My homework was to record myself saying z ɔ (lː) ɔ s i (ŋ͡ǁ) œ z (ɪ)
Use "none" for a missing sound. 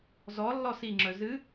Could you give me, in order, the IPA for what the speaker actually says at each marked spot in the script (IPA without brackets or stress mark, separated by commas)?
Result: lː, ŋ͡ǁ, ɨ